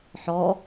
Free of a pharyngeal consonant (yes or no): no